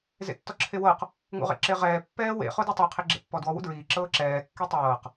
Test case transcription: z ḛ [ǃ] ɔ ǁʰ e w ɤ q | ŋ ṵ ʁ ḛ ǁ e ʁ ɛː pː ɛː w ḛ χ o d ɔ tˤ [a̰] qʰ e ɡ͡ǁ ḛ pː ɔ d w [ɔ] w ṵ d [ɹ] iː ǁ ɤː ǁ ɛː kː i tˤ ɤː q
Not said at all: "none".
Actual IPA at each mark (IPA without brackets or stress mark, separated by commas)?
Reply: tː, a, ɔ, ɹ